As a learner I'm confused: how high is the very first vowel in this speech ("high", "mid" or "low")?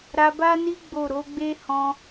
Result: low